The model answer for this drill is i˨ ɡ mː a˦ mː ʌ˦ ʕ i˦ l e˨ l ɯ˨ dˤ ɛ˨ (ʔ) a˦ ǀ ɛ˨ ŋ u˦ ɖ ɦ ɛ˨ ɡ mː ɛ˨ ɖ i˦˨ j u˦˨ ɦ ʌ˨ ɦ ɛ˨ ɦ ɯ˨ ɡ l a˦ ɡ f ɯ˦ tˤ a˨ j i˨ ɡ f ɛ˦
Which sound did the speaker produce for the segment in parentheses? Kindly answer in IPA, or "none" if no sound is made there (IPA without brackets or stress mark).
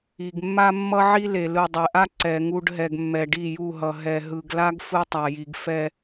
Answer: ʔ